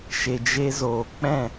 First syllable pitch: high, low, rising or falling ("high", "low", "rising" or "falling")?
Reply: low